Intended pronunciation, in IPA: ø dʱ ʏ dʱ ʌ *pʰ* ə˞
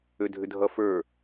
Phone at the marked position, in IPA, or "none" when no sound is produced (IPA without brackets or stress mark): f